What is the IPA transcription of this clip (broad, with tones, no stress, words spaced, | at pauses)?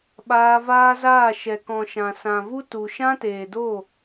ɓaː˧vaː˦zaː˦˨ ʃɛ˨kɔ̃˨ʃã˨ sã˨vu˦tu˨ ʃã˦teː˨do˦˨